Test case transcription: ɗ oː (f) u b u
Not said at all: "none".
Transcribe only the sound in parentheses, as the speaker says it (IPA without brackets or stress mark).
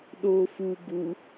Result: f